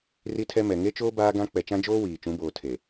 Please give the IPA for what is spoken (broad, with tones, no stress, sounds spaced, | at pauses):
r i˦ tʰ ɛ˦ m ɛ˨ ŋ e˦ t͡ʃ oː˦ b aː˦ ɡ ã˦ k͡p ɛ˨ t͡ʃ ã˦ d͡ʒ oː˦ w iː˨ t͡ʃ ũ˨˦ b oː˨ tʰ e˨